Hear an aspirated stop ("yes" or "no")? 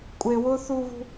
no